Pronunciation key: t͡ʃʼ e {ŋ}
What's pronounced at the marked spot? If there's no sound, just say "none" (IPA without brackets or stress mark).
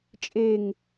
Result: ŋ